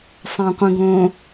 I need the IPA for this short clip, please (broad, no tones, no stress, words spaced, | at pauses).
sˤæ̃qʷĩɡõ